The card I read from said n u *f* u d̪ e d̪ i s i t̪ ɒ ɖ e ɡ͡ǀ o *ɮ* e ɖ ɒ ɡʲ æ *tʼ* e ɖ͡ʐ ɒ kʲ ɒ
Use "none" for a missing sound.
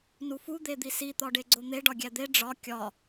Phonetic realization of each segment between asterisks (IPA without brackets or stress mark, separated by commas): f, n̪, d̪